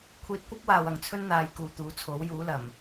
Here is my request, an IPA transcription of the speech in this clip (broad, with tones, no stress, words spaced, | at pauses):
kʷʰiː˧t̚kʷɐ˥p̚waː˨w ɐ˨ŋt͡sʰɵ˥n n̪aː˨˧jkuː˨˧t̪uː˨˥t͡sʰo˨˥w juː˨˥lɐ˨˩m